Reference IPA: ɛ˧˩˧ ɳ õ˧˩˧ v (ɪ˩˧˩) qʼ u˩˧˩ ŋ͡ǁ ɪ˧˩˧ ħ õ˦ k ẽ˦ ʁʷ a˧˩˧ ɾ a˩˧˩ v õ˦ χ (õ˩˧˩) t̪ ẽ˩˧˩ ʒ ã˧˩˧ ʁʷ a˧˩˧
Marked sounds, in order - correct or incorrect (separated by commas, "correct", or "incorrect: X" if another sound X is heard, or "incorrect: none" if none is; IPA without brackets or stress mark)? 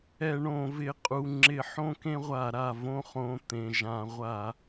correct, correct